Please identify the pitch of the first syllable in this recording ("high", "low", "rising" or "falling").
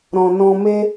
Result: low